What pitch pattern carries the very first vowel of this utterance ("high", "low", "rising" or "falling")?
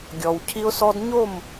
low